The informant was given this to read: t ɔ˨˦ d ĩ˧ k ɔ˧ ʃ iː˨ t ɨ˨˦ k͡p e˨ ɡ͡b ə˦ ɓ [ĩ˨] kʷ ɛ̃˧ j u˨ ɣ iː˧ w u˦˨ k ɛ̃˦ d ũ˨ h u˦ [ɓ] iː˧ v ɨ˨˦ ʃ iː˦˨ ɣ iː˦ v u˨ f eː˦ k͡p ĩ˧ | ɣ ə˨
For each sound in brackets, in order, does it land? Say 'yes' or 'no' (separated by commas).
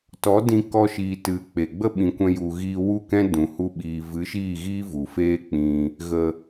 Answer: yes, yes